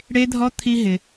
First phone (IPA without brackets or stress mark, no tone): ɽ